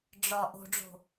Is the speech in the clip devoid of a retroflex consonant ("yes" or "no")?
no